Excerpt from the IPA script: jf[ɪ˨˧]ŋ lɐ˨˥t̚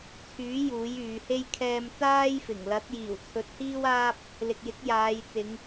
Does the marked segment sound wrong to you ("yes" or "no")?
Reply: yes